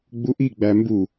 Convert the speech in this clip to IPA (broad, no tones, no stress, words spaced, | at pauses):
ɡ͡buʔiɡ͡bæ mbu